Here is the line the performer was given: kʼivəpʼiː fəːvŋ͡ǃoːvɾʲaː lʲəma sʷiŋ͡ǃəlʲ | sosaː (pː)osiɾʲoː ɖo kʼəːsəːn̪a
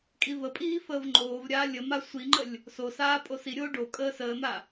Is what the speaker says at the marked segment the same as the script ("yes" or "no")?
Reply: no